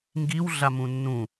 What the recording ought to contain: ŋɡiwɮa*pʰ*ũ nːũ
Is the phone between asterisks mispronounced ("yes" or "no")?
yes